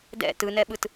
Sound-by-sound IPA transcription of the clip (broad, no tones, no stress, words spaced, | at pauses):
dɛ̰ tɯnɛɓɯt